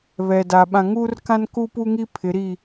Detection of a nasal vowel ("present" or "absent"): present